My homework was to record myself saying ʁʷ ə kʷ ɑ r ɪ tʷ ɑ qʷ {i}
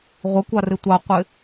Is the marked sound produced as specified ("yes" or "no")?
no